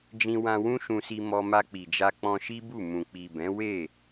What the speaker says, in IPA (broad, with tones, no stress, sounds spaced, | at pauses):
d͡ʒ ĩ˧ w ã˧ w ũ˦ ʃ ũ˧ s i˧ m ɔ˧ m a˧ k͡p i˨ d͡ʒ a˧ k͡p ɔ̃˧ ʃ i˦ b u˦˨ m ũ˨ k͡p i˨ b ɛ̃˨˦ w e˦˨